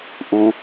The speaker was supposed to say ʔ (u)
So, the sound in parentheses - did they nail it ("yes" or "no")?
yes